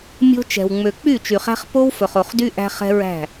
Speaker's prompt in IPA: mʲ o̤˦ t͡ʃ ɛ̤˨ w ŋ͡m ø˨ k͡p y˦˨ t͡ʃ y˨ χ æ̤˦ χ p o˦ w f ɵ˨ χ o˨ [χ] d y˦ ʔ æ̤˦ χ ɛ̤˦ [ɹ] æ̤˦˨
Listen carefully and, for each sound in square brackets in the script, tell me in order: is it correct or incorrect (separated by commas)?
correct, correct